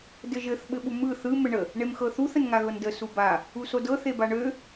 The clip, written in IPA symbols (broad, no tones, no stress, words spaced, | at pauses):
dɘʒɘθ ɓɘɓumɯ θɯ mɘɳə | ɳemxɤθuθ ənŋaɣɤndə suba | usodɤ θebaɳø